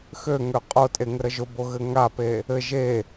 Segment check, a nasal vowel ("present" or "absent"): absent